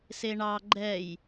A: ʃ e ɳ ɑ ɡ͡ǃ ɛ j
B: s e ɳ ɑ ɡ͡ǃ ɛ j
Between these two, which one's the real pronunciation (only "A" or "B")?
B